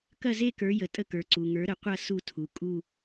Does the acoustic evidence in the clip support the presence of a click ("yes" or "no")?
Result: yes